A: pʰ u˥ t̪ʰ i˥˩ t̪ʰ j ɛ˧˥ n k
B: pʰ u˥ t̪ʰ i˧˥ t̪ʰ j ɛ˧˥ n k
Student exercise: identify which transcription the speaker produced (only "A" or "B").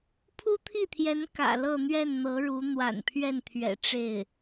A